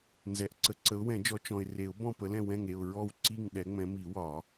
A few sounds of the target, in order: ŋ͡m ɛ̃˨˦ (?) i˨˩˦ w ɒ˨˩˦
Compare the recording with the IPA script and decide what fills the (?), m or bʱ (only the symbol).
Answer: m